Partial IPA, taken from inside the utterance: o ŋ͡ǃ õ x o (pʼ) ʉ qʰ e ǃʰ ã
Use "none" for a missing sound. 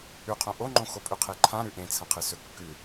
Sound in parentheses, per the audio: pʼ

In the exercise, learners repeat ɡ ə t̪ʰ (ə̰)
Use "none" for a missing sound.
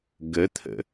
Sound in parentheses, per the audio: ə̰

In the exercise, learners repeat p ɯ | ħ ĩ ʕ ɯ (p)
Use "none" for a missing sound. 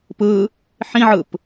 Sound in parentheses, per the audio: p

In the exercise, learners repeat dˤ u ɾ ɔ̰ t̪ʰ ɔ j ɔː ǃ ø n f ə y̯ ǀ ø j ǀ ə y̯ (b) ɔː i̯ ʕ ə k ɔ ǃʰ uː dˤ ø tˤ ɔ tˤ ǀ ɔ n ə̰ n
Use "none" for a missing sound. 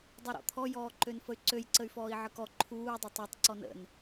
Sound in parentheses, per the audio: f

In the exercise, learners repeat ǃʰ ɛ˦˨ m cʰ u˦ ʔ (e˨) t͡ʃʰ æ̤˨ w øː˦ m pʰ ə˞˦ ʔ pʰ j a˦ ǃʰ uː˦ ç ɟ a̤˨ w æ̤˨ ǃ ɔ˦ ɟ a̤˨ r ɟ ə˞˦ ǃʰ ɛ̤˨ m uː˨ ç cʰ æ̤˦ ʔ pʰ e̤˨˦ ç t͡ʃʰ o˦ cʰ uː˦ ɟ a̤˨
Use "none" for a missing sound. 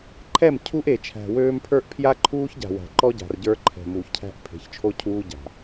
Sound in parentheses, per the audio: e˨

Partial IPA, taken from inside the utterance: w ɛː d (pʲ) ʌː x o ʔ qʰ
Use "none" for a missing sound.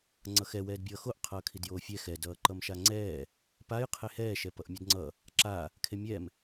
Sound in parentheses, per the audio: bʲ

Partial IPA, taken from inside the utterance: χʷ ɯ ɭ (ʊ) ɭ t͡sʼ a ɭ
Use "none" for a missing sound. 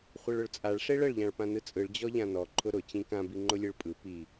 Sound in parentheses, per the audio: ʊ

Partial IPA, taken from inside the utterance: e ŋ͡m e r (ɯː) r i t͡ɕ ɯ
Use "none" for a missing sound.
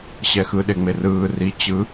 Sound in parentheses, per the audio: ɯː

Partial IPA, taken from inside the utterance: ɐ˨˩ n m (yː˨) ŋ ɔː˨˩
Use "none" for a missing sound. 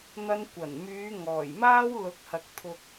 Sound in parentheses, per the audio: yː˨˧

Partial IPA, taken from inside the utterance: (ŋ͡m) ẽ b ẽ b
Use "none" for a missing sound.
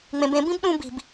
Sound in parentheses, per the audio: ŋ͡m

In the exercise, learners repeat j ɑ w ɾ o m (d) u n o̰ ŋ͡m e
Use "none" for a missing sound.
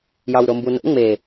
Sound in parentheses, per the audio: b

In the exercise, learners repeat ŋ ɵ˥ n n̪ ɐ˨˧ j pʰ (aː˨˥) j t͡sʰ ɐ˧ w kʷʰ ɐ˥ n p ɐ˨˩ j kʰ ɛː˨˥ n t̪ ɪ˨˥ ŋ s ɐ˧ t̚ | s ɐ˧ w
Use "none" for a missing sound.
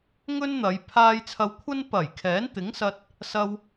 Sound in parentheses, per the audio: aː˧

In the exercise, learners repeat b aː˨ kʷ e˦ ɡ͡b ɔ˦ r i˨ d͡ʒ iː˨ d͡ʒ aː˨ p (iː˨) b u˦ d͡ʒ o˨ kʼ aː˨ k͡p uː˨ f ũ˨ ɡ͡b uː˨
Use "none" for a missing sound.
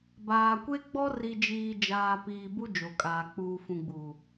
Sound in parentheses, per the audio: iː˨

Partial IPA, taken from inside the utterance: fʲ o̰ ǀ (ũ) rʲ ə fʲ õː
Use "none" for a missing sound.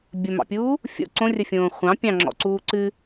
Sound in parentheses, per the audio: õ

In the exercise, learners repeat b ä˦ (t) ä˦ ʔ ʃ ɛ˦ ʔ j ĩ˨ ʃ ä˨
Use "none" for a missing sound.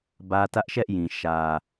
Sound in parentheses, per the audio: t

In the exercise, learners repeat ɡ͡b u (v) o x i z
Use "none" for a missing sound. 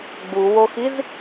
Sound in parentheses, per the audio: w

